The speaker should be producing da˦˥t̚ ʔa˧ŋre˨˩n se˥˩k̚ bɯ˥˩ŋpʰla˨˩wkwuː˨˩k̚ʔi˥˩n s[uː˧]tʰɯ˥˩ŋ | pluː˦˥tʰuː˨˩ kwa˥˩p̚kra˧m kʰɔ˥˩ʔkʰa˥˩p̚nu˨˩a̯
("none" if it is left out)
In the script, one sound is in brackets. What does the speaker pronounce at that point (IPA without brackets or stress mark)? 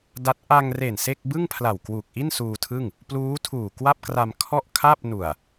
uː˧